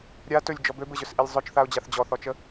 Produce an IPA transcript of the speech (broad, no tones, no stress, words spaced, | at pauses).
ɾʲa tɵlʲd͡ʒɔ bøbɘʑɵsʔilʲ zˤøt͡ʃθaʊ̯d͡ʑaθ d͡ʑɔθɔt͡ʃə